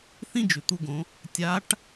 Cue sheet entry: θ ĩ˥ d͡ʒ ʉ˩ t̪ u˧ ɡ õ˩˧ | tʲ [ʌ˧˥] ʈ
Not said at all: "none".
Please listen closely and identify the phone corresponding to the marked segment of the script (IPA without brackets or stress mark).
a˧˥